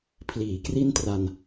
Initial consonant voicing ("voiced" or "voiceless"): voiceless